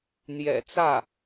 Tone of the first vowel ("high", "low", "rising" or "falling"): low